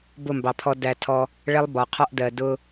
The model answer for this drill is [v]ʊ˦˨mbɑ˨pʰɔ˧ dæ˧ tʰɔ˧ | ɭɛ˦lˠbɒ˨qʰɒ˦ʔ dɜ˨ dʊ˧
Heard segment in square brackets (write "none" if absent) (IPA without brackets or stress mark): b